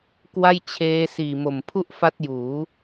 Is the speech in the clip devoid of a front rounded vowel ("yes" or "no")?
yes